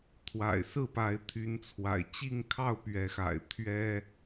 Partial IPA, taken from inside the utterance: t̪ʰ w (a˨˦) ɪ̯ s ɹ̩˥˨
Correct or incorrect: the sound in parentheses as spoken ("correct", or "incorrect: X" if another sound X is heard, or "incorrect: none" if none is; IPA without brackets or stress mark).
incorrect: a̰˨˩